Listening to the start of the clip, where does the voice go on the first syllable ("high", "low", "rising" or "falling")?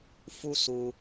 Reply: high